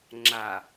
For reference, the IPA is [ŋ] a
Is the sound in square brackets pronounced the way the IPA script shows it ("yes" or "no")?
no